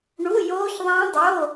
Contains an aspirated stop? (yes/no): no